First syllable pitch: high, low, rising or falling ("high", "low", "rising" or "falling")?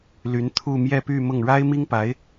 rising